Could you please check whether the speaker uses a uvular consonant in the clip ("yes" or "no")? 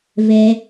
no